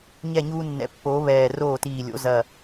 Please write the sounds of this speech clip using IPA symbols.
ɲ ɛ˥˩ ɲ uː˧ nː ɛ̰˩˥ pː oː˩˥ β ɛː˧˩ r oː˥˩ t iː˧˩ lʲ o̰˩˥ z ɐ˧˩

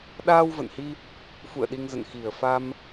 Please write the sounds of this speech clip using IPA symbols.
ɗ aː˧ w v ə̰˧˨ n h i˧ | f ṵ˧˨ ə̯ ɗ i˧ ŋ z ə̰˧˨ n x i˨˩ ə̯ f a˧ m

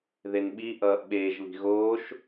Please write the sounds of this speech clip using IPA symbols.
ð e n ɓ i ʔ ʌː ʔ ɓ eː ʒ β i̤ ɣ oː ʃ

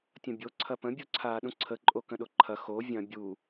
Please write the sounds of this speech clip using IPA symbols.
tʲ ɐ̃ bʲ o ǀʰ ɐ p ə̃ bʲ u ǀʰ aː ɗ ũ ǀʰ ə ǃʼ o k ə̃ ɗ o ǃʰ ɐ x o vʲ ɐ̃ bʲ u

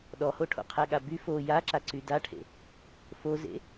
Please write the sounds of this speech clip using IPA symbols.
ɗ ɔ h o ʈʰ o̰ qʰ ɛ ɠ a b y f o j a ǁ a ǀ y d a ʈʰ ḛ | f o z ḛ

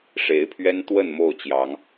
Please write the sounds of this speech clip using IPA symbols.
ʂ e˨˦ ɪ̯ pʰ ɥ ɛ˦ n t̪ w ə˥˨ n m o˥˨ ʊ̯ t͡ɕ j ɑ˨˦ ŋ

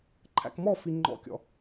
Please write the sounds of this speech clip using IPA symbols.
ǃʰ æ̰ k m ɔ f i ŋ͡ǃ ɔ̰ kʲ ɔ̰

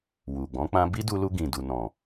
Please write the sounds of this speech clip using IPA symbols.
w u˨ ɡ͡b ɔ̃˨˦ k͡p ã˧ b i˦ d u˧ l u˧ ɡ ĩ˨ d u˨ n ɔ̃˨

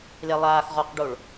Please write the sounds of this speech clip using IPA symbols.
l e lˠ aː x ʁ ɔ q ɖ o ɭ

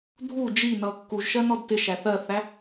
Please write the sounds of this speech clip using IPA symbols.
dʱ u d͡ʒ i n ʌ kː u ʒ ʃ ɜ n ɔ d t ɪ ʃ æ θ ɜ θ æ

